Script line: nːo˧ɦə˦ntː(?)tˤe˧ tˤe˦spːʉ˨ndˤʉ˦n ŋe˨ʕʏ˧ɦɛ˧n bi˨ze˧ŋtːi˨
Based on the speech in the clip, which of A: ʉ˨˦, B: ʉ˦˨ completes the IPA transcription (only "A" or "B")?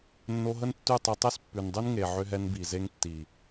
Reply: B